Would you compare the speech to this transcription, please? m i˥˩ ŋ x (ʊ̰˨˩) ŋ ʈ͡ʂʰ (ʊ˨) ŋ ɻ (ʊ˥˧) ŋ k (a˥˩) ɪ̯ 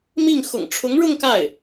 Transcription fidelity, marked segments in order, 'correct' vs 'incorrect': correct, incorrect: ʊ˧˥, correct, correct

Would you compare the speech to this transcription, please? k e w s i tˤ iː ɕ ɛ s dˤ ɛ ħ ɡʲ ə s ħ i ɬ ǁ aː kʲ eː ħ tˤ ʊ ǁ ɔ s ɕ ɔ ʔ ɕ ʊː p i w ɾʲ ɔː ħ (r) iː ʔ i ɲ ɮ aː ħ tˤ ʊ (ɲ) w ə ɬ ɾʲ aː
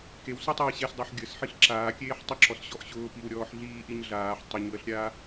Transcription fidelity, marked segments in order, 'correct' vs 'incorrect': incorrect: ɮ, correct

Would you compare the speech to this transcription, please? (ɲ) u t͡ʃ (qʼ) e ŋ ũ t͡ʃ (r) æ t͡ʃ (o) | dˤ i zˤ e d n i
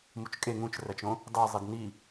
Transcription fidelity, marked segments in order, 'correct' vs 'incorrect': incorrect: m, incorrect: kʼ, correct, incorrect: õ

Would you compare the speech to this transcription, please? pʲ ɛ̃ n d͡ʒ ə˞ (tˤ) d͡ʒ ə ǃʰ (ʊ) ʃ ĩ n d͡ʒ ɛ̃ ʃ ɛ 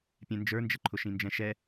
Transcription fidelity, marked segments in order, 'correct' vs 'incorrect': incorrect: n, correct

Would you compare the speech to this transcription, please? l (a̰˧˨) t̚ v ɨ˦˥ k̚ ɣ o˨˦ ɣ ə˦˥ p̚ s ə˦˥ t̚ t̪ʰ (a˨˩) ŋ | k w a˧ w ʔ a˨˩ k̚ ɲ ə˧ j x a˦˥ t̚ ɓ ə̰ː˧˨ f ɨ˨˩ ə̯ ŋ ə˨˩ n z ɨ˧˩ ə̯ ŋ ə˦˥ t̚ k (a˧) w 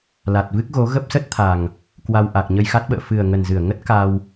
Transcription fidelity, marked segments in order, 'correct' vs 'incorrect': incorrect: a˨˩, correct, correct

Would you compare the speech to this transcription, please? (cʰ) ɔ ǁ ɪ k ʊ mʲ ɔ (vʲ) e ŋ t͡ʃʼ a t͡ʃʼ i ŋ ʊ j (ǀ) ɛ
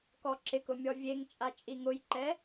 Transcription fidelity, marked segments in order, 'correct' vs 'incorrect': incorrect: k, correct, incorrect: ǃ

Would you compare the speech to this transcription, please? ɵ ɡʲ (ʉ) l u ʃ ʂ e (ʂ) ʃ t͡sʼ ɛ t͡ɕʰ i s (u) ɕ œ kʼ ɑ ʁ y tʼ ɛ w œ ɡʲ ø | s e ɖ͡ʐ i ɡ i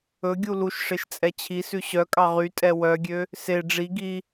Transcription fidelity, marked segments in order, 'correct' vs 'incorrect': incorrect: u, incorrect: none, incorrect: ʉ

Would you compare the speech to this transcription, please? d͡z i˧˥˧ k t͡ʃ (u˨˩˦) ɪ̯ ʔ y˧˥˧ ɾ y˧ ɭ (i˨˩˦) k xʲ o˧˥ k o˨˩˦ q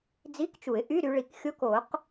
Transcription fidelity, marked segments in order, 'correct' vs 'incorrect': correct, correct

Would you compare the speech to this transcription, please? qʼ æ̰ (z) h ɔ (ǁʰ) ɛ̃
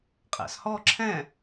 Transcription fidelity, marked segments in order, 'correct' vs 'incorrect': incorrect: s, correct

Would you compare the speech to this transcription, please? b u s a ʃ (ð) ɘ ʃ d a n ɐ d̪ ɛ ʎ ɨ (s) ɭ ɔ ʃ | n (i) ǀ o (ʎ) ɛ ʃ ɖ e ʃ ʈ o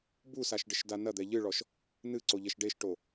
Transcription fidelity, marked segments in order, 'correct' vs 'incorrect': incorrect: ɖ, incorrect: none, incorrect: ɨ, correct

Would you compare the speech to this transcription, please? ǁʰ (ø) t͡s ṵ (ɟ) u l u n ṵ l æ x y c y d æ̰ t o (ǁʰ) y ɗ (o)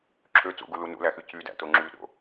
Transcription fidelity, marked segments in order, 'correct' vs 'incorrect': correct, incorrect: ɡ, incorrect: ŋ͡ǁ, incorrect: o̰

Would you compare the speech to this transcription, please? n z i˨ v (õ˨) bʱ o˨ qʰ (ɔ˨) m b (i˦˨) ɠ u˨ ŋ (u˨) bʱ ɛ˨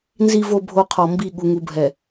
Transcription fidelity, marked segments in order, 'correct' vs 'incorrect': incorrect: o˨, correct, correct, correct

